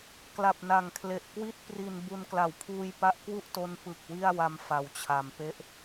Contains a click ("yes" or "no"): no